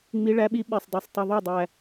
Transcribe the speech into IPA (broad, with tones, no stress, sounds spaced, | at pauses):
ŋ͡m i˧˥ ɭ æ˧˥ ɓ i˧˥ ɓ e˨˩ sˤ dˤ o˨˩ sˤ tˤ u˨˩ ðˤ o˥˩ dˤ æ˨˩